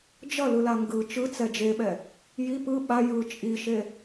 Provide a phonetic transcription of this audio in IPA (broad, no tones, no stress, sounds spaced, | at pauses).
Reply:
d͡ʒ ʌ l ɯ l a ŋ ɡ ɯ t͡ʃ ɯ t͡s ɛ d͡ʒ e ɓ ɛ | j i p ɯ ɓ a j ɯ t͡ʃʼ i ʃ e